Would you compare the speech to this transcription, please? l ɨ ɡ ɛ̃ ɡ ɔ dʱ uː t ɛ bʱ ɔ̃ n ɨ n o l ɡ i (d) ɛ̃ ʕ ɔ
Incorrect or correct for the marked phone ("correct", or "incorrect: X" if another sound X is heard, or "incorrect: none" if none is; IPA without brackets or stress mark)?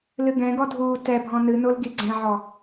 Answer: incorrect: ɡ͡ǀ